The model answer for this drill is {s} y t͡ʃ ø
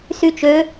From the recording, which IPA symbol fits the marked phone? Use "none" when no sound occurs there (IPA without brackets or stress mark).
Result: s